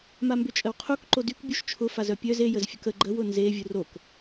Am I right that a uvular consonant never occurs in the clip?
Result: no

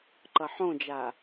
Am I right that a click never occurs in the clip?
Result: no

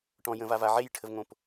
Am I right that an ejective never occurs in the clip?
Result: yes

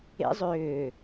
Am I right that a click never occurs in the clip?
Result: yes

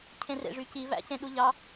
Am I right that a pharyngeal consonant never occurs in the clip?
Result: yes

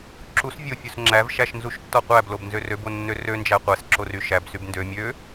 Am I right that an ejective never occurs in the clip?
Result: yes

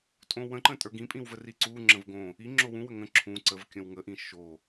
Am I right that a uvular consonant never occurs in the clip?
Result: yes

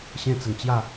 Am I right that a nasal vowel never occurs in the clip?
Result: no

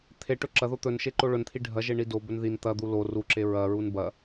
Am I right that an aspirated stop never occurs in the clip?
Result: no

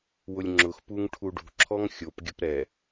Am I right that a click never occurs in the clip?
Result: no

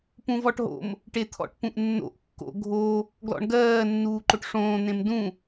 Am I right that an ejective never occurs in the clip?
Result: yes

